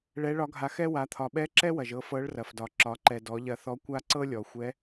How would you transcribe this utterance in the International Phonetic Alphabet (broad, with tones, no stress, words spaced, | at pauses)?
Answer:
ɭɛ˧˥ɭɒ˧˥ɡʱa˧ xɛ˥ wa˩˧t̪ʰɒ˩ɓɛ˧˥ ǁɛ˥wɐ˩ʒ ɤ˧fɤ˧˥ɭrɐ˩fdɒ˩ ǁɒ˩˧ǃɛ˩dɔ˩˧ ʎɐ˧θɔ˧˥kʷa˥ ǀɤ˥lʲɔ˩ xʷɛ˧˥